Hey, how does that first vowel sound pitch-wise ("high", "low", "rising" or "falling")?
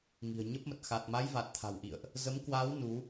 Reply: low